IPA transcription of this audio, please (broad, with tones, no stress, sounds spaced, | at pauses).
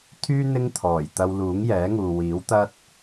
t̪ʰ yː˥ n̪ ɪ˥ ŋ t̪ʰ ɔː˨˩ j t̪ ɐ˧ w l uː˨˥ ŋ j ɛː˨˥ ŋ uː˨ w iː˨˥ w t̪ ɐ˥ t̚